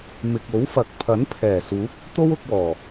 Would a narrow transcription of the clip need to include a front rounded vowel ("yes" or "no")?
no